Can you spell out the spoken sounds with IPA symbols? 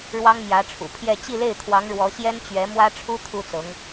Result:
ɻ w ɑ˥ ŋ m j ä˧˥ ʈ͡ʂʰ ṵ˨˩ pʰ j ɛ˥˧ t͡ɕ i˥˧ l e˥˩ ɪ̯ t̪ʰ w ɑ˧˥ ŋ ɻ w ɔ˧˥ ɕ j ɛ˥ n t͡ɕ ɥ ɛ˧˥ m w ä˥ ʈ͡ʂʰ u˥ t̪ʰ u˥ t͡s ɤ˧˥ ŋ

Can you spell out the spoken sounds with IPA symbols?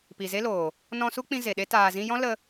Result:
p i˨ z e˦ l oː˨ | n ɔ̃˧ s u˦ k͡p ĩ˧ z e˨ ɗ e˦ t aː˨ z ĩ˧ j ɔ̃˦ l ə˧

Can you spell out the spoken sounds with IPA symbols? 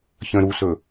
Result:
ç ə̃ː ɾ u s ɵ

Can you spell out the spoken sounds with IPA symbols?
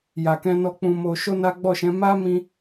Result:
j a˨ k ɛ̃˧ n ɔ˧ k͡p ũ˧ m o˧ ʃ o˦ n a˦ ɡ͡b ɔ˦˨ ʃ ɛ̃˨˦ m a˦ m ĩ˧

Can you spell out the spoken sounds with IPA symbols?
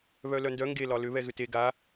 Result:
β œ l œ n d œ ŋ ɡ e l ɒ l ʏ β ɛ ɣ ʏ t e ɡ a

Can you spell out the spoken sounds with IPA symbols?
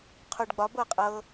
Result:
qʰ u ɖ ɡ͡b ɒ b ɤ qʼ ɤ

